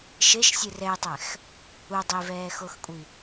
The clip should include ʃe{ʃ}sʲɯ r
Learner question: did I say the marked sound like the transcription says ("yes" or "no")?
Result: yes